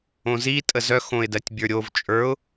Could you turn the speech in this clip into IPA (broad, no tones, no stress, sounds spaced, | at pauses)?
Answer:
õ z i tʼ ə z œ x õ ɪ̯ d ɜ tʲ bʲ ə˞ ɾʲ o v t͡ʃʼ ə˞ ʊ̯